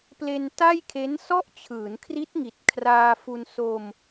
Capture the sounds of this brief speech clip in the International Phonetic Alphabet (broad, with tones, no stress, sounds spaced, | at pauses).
p l e˧ n t a˥˩ j kʰ e˦˥ n s ɔ˥˩ ʔ t͡ɕʰ ɯː˩˦ n kʰ r i˦˥ t̚ ŋ i˨˩ t̚ kʰ r aː˧ f u˧ n s o˧ m